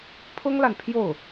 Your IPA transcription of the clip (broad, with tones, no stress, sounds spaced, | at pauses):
pʰ ʊ˥ ŋ l a˨ n pʰ j o˥˩ ʊ̯